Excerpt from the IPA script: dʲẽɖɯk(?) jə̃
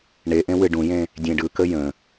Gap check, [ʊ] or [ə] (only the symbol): ə